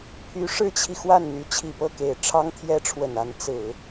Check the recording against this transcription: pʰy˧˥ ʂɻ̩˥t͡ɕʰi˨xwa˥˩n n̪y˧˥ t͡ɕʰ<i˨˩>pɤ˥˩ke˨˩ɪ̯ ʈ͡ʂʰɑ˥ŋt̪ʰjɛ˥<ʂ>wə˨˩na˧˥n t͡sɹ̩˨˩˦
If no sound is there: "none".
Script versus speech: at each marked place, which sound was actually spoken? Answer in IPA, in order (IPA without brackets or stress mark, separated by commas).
i˨˩, ʈ͡ʂʰ